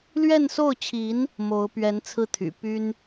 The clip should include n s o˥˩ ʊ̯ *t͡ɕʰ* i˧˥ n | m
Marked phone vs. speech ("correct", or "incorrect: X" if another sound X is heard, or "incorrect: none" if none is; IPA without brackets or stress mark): correct